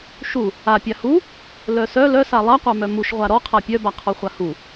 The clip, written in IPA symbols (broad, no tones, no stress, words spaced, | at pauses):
ʃu | a pʲahu | lœsœ lœsa lˠaqʷamœ muʃʁʷa ɾɔqʰa pʲœbaqʰɔ χʷahu